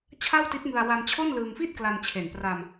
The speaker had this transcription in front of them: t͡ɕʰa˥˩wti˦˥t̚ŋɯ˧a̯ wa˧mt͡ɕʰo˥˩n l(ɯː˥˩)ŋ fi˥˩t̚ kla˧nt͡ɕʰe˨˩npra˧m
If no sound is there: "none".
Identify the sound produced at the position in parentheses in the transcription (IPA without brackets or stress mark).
ɯː˧